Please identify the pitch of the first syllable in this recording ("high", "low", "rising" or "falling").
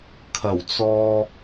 low